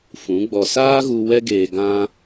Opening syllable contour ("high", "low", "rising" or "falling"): rising